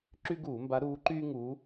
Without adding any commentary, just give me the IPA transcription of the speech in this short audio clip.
ǁy˦ɡuː˧˩˧mba˨˦ ɾuː˨˦ ǃyː˦ŋuː˨˦

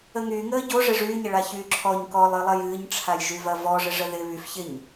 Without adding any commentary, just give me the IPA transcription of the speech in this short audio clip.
əŋy ŋəːɟo ʐɪʐyːɲɪɭa çyːǁʰɔɲ kɔlˠɨlˠɐj ɨːɲʈ͡ʂʰaj ʒyvɐvɔʐɪ ʐəðɪ βyf çɪɲ

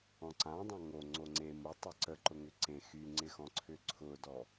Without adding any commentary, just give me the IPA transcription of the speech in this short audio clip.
ɔ̃ǀãdˤã ŋo ŋ͡ǀoŋ͡ǀe mʊtˤʏ ǀəǃʊ ŋʏǀẽ xyŋ͡ǀɪxɔ̃ ǀʰʏǀʰʊdɔ

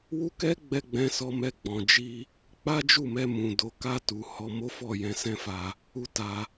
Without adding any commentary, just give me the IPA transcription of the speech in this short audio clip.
wu˦kɛ˦ɡ͡bɛ˧ ɡ͡bɛ̃˦sɔ˦mɛ˦ ɡ͡bɔ̃˧ d͡ʒi˧ | k͡pa˦d͡ʒu˦˨mɛ˧ mũ˧do˦ ka˧tu˨ hɔ˧mo˦fɔ˦˨jɛ̃˧ sɛ̃˦fa˧ | u˦ta˧

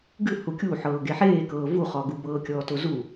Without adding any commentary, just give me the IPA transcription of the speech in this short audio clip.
ɡɨ hukʲuħɤː ɡeħeːkɤː vuχɔɡu bɤːkʲɔːtozu

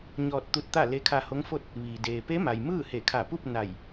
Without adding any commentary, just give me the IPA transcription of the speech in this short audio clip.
ɲɔː˧t̚t̪u˧t̚t̪a˥˨ le˧˥kʰa˧ho˧˥ŋfo˥˨t̚ | ʋi˩ deː˩pe˧˥ma˩j mɯː˥˨he˧˩kʰa˧˩pu˥˨p̚ na˧˩j

